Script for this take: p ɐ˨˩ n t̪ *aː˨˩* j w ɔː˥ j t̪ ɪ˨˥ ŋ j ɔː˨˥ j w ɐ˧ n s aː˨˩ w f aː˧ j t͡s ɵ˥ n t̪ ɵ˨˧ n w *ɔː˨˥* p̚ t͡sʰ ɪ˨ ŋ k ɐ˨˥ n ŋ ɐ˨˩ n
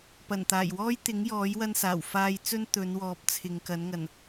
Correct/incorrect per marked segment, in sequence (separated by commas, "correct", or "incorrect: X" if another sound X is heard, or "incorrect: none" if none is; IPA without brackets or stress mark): correct, correct